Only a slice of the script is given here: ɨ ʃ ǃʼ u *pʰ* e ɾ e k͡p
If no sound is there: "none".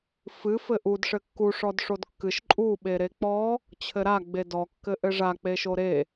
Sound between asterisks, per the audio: ɓ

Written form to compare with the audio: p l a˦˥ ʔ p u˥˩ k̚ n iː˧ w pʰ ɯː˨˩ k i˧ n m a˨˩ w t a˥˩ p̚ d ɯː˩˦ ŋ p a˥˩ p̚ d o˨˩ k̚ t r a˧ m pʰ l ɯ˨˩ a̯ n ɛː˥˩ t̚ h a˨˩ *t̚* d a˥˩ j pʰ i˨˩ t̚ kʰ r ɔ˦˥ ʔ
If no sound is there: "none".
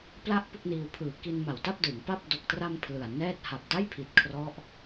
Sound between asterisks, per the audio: p̚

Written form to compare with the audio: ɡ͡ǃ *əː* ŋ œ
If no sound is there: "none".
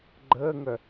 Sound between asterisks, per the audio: əː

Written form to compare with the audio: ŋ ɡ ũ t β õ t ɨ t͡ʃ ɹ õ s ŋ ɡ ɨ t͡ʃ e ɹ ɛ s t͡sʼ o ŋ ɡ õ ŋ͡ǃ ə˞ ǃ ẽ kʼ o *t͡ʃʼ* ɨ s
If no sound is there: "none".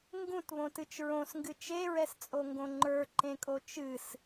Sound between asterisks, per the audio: t͡ʃ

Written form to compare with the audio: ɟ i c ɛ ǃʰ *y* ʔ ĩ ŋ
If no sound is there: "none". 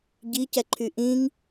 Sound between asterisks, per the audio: y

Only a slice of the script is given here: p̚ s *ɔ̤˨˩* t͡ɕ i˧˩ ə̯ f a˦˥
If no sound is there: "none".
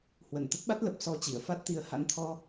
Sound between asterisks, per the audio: ɔ˧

